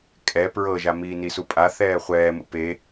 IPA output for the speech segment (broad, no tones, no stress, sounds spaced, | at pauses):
kʼ ɛ p ɹ ɤ ʒ a m iː n i s u pʼ a θ ɛː χʷ ɛː m ṵ p e